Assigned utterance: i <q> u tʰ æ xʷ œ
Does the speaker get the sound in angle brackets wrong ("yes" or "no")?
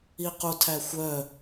no